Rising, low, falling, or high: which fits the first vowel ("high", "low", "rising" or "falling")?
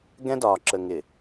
high